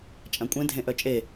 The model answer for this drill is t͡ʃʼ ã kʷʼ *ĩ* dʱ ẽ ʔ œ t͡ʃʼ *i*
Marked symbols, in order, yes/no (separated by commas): no, no